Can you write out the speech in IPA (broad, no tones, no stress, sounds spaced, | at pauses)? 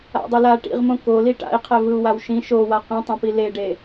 a̰ dˤ ɯ l a ʈ ḭ ʁ m õ k o l i ʈ a̰ i̯ qʰ ɛ v ɯ u̯ w a w ʃ ĩ ʃ o w a q ĩ tˤ ẽ p i l e ɖ e